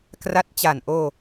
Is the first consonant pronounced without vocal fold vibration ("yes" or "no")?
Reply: yes